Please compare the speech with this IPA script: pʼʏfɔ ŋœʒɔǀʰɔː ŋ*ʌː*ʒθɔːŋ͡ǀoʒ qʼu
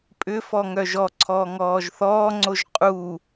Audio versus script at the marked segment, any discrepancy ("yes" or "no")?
yes